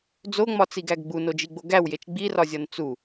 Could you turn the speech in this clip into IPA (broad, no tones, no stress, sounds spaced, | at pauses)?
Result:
d͡z o ŋ͡m ɒ t͡s i ɡ æ ɡ ɡ͡b u n o d͡ʒ i ɡ͡b o ɡ æ w j e t͡ʃ ɡ͡b i r ɒ zʲ ɒ n t͡s u